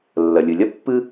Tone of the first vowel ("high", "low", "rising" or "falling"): low